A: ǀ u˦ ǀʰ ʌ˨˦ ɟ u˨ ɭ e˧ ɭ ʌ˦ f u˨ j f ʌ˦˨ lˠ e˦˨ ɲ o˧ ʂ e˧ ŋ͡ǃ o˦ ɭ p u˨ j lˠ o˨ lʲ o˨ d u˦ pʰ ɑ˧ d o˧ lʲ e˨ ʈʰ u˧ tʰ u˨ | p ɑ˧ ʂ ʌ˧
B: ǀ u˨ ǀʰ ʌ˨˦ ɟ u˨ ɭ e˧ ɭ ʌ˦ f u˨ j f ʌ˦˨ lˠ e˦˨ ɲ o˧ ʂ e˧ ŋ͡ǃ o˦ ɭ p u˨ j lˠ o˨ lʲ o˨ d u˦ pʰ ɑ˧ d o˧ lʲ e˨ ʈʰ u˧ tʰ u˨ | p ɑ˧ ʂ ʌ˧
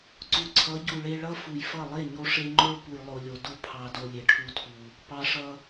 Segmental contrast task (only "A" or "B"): B